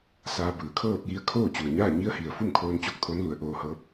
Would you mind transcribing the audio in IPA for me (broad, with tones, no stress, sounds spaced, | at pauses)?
s aː˧ b ɯː˩˧ kʰ ɤː˥˨ p̚ j i˧˥ ə̯ kʰ oː˥˨ t͡ɕ u˩ ə̯ ɲ aː˥˨ ɲ i˧˥ ə̯ h i˩ ə̯ f u˥˨ m kʰ oː˧ n t͡ɕ o˧ k̚ t̪ʰ o˧˥ n l u˩˧ ə̯ ʔ oː˧ h ɤː˧˥ p̚